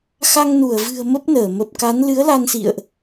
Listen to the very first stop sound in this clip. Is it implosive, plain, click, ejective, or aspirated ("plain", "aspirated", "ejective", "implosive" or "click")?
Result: plain